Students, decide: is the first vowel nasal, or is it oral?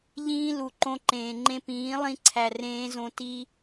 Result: nasal